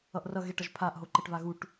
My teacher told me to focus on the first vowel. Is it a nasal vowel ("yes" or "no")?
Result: no